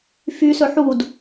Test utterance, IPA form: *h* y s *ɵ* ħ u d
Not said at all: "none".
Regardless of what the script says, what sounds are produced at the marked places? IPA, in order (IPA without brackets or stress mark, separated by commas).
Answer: f, ɵ